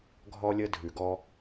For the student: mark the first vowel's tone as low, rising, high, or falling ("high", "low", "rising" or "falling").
high